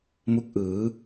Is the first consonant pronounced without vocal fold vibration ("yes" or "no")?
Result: no